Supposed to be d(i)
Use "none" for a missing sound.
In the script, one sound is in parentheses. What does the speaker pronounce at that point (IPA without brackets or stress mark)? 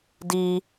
i